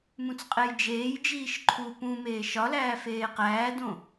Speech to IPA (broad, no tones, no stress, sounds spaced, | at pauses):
m ũ t͡s qʼ e j d͡ʒ eː j d͡ʒ iː ʃ ǃʰ u p ũ m eː ʃ ɒ l æː f eː q æː d õ